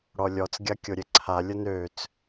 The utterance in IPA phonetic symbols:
ɽɔlʲɔt͡s ɡʲakʲoɾʲeǀʰa lʲənøt͡s

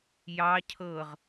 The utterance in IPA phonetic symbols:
jɑ cʰɤʁ

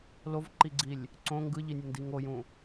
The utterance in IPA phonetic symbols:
lovǃiɡ͡ǀilʲ | ǀõ ŋɡɯʎinʲɯndi ŋojũ

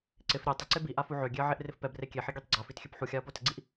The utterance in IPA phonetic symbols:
ǀɪf ɾʲɛ tˤɪǀe biʔa fuʕøɡʲeɐ̯ ʕeʔrɪfpɛbre kʲeħi ɡʲɛtˤɡ͡ǀafit xʲøpħuxʲaɐ̯ potɪɡ͡ǀiʔ

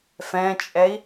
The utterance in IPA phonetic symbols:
fɛ̃t͡ʃʼɛi̯

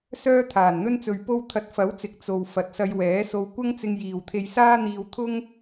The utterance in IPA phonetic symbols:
sœː˥t̪ʰaː˨˩nn̪ɵ˥nt͡sɵ˧ɥ po˧w t̪ʰɐ˨t̚fɐ˨˥wt͡sɪ˨k̚ t͡so˨w fɐ˨˥t̚sɐ˧jwɛː˨˥so˧w kʷɐ˥ŋt͡sɪ˧ŋ jiː˨wt̪ʰe˧jsaː˥n̪iː˧w t̪ʰʊ˥ŋ

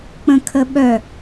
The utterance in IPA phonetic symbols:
k͡pə̃kʰəɓœ

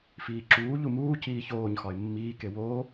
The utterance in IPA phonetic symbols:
fiːǁuː ʎumuː ciːçoːɲ xɒɪ̯mːiː kewoː

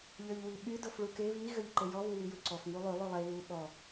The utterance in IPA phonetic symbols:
ʎøʎwiɓy dofɭuke βi ɣøʎǃejɔ βuwijuǀɔf ŋulˠy lˠylˠe βu ɓɔ

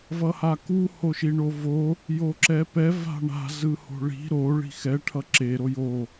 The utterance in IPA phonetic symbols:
vʌhaku hoʃiɳovo | joǁɛpɛ va̤ɳa̤ zɯho̤ɭi̤ ɾo ɭi̤xɛ ʈʰʌǁe ɾojo

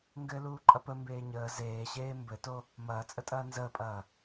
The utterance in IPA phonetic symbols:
ŋɡɘluː ǃʼɐpə mbeːɲəː zeːɕeː mbɘto | mɐːt͡sʼətʼɐː nzəːpʼɐː

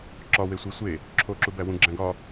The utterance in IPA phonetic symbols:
ǁɒwesʷi sʷe | ǁʰoǁubæ wũɡ͡ǁæ̃ ɡɒ

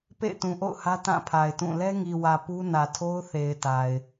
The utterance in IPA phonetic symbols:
pḛ˦˨ɪ̯tũ˨ʔo̰˦˨ʊ̯hä˦ tã˦˨pʰa˨ɪ̯tũ˦˨ lɛ˦ŋi˨wä˨ pu˦ nä˨tʰo˦ʊ̯θe˨ɪ̯ ta˨ɪ̯

